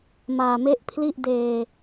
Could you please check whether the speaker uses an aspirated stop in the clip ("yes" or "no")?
yes